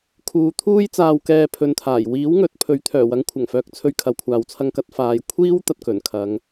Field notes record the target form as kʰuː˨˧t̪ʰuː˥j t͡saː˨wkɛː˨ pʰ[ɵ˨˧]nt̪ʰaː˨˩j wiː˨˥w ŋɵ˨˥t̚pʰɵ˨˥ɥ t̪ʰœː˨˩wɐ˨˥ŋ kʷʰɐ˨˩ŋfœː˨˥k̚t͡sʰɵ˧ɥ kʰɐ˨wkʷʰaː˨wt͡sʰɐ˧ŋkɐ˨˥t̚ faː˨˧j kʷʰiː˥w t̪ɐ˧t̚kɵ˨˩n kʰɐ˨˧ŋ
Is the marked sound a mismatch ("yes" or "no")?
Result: no